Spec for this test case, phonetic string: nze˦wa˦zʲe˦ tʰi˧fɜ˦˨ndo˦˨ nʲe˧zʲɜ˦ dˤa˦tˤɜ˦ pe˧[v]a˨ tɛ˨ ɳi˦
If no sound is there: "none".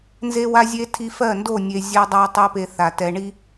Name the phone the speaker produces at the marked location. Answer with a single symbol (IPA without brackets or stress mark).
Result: θ